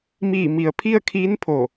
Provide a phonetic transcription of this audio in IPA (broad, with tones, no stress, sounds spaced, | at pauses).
m iː˧˩ m i˩ ə̯ pʰ i˥˨ ə̯ kʰ iː˧˥ n pʰ o˧˩